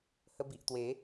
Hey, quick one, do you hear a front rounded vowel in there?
no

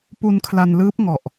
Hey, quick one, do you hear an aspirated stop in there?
yes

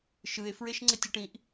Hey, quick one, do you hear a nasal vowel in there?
yes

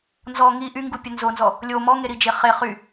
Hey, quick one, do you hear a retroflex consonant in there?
no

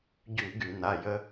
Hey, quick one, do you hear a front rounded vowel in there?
yes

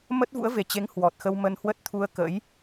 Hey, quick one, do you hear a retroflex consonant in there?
no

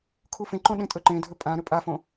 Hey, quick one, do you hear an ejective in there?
yes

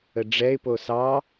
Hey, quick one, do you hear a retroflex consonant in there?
yes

